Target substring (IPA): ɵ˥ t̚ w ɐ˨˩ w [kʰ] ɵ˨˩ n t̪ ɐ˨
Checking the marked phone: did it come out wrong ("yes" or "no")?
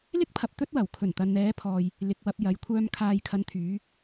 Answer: no